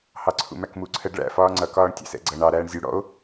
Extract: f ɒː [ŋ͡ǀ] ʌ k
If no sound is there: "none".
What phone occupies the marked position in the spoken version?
ŋ͡ǀ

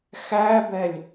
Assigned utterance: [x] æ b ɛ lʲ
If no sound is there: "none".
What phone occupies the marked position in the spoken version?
x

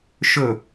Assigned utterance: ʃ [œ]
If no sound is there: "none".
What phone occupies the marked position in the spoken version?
ɵ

